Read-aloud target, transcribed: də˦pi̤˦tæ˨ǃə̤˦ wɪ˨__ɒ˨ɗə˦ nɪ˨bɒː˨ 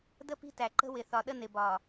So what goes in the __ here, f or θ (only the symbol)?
θ